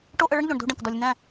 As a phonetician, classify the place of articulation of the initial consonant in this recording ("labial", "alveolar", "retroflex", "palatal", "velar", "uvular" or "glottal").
retroflex